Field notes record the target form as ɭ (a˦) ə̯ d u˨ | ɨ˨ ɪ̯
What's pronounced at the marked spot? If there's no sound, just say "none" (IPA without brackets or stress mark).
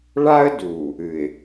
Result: a˦